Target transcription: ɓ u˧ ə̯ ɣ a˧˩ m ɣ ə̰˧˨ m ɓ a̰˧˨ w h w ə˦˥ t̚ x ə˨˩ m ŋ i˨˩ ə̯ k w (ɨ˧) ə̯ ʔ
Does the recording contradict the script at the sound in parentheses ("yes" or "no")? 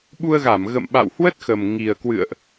yes